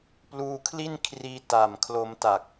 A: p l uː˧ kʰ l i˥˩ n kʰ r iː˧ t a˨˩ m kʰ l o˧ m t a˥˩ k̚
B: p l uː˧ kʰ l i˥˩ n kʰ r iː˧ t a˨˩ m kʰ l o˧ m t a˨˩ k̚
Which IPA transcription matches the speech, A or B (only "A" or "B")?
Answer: B